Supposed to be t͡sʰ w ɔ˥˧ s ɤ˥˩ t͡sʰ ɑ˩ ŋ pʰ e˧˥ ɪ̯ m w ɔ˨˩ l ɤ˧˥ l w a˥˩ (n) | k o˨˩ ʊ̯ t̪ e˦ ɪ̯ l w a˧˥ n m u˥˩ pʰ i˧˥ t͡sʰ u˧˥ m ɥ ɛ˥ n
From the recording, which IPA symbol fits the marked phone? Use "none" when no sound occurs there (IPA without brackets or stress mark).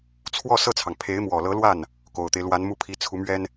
n